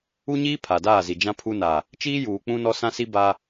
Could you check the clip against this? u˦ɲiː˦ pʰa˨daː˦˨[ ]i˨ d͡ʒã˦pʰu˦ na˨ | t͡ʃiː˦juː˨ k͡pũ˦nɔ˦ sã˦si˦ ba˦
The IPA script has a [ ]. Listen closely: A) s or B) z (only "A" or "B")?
B